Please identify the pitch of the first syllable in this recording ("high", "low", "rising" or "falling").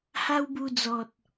high